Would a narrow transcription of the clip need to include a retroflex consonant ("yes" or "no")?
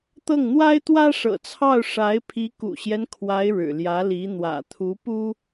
yes